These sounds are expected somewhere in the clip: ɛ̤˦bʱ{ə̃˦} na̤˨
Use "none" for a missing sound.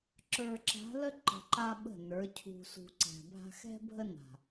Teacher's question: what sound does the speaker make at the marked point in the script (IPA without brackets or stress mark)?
ə˦